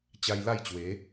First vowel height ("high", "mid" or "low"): low